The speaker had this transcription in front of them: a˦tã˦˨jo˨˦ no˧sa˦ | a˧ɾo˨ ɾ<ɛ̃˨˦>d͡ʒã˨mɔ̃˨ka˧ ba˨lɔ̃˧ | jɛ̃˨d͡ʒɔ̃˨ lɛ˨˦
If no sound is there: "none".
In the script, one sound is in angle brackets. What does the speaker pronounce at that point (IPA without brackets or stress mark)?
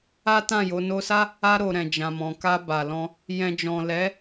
ɛ̃˨